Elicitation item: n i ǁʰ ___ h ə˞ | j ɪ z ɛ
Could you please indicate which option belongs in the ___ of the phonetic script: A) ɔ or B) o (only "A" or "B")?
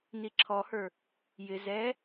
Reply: A